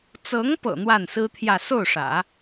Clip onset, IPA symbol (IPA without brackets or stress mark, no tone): t͡s